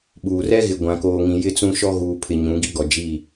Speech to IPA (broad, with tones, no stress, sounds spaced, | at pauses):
ɓ uː˨ r ɛ˦ ɣ ɪ˨ ɡʷ ã˨ k oː˨ ŋ ĩ˨ j ɪ˦ t͡s ũ˦ ʃ ɔ˦ ɣ uː˨ pʰ ɪ˨ ɲ ũ˨˦ ɡ i˦ ɡ ɔ˨ d͡ʒ i˦˨